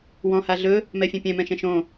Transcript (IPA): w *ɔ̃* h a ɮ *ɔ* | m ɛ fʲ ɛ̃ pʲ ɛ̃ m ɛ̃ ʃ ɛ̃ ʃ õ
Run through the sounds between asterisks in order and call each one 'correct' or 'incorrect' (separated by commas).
correct, incorrect